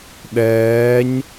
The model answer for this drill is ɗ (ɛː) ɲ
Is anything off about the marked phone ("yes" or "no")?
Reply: no